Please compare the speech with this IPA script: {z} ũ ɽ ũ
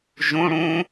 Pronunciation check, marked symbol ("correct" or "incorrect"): incorrect